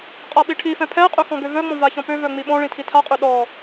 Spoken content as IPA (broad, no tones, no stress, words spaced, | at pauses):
qʼaɓiʈʰifɛ̃ pʰɛqʼø xɔ̃ɡøvœŋ͡mɔ̃ vaçɔ̃pøvœ ŋ͡miɓɔ̃ɭĩ tʰitʰaqʼø ɗɔ